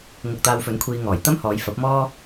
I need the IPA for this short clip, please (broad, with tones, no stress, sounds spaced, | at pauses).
ŋ ʊ˧ k̚ t̪ aː˧ w f ɵ˨˥ n kʷʰ iː˧ ŋ ɔː˨˩ j t̪ ɐ˥ m h ɔː˨˧ j f ɐ˨˥ p̚ m ɔː˥